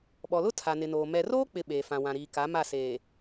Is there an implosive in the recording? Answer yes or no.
yes